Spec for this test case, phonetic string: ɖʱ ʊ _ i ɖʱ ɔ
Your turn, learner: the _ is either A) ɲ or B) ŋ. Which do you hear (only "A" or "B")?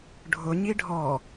A